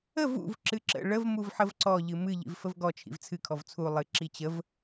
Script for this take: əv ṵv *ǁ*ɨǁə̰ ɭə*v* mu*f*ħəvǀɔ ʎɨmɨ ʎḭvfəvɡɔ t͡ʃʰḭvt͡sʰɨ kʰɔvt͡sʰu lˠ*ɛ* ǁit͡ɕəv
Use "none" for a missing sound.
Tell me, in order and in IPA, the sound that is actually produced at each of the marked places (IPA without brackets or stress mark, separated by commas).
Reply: ǁ, v, v, ɨ